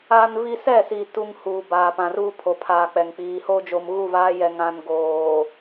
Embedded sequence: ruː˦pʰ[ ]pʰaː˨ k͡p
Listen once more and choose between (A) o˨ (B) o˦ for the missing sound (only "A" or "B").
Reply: A